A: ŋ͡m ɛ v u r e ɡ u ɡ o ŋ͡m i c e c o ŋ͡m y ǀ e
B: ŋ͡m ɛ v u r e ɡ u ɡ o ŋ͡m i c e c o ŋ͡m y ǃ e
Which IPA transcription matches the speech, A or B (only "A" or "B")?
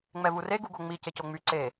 A